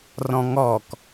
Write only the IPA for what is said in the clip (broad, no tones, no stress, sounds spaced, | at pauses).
r ɔ̃ ŋ ɔ k